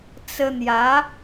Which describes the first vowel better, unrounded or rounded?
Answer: unrounded